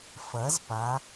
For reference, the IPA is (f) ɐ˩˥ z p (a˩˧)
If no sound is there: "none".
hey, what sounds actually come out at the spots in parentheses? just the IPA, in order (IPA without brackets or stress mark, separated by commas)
f, a˩˧